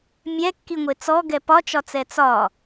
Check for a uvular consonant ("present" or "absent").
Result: absent